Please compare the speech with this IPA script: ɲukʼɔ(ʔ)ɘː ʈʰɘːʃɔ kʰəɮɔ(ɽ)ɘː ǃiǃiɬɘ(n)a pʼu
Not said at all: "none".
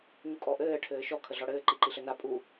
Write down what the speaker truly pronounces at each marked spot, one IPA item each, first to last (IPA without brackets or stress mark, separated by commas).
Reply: ʔ, ɽ, n